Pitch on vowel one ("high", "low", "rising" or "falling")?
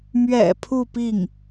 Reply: low